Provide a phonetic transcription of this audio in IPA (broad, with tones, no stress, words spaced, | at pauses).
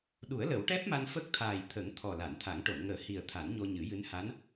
ɗu˨˩˦ə̯lə˨˩˦wʈɛ˦˥p̚ma˧n fə˦˥k̚t̪ʰaː˨˩jt̪ʰə˨˩˦ŋ t̪ʰɔ˨˩la˨˩˨nt̪ʰa˨˩˦ŋ ʈo˨˩˨nŋəː˨˩˦hi˨˩ə̯ t̪ʰa˨˩˦nɲo˧ɲɨ˨˩˦jɨ˧˥n ha˧˥n